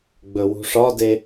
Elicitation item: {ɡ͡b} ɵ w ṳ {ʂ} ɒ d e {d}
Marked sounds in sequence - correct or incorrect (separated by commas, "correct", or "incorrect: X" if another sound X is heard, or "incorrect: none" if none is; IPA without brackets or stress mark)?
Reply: correct, correct, incorrect: none